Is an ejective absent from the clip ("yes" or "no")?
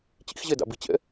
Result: yes